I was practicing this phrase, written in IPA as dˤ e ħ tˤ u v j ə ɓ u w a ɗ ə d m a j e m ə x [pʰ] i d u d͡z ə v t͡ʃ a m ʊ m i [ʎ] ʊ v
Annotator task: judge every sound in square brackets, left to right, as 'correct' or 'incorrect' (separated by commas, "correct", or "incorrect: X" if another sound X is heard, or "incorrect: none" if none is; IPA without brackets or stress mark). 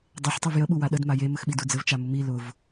incorrect: ɓ, incorrect: l